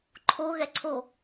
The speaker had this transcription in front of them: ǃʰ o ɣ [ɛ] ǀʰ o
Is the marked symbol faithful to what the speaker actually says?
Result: yes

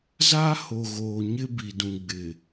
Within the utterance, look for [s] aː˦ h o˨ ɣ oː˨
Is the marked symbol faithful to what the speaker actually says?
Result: no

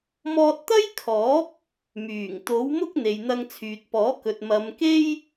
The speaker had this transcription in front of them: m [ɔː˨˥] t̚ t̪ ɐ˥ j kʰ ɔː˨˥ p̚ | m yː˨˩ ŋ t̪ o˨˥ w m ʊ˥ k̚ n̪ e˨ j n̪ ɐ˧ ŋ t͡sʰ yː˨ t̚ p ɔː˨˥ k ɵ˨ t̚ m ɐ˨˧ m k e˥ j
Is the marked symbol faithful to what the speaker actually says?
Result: no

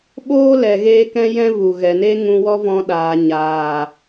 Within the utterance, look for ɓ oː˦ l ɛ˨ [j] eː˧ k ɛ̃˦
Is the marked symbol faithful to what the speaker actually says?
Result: no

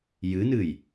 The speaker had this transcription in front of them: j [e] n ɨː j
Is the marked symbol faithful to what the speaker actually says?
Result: no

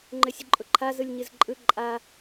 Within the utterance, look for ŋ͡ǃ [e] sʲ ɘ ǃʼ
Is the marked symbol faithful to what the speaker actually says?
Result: no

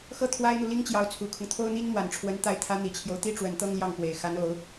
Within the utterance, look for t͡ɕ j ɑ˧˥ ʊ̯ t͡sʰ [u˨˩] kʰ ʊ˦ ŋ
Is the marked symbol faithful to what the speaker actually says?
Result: yes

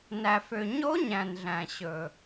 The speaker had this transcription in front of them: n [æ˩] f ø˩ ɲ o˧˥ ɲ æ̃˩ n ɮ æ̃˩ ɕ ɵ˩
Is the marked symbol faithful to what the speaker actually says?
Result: yes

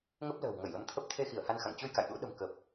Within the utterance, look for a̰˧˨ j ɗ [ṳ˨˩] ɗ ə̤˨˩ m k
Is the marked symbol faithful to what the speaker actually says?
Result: no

